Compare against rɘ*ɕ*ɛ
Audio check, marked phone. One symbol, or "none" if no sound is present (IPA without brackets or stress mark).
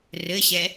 ɕ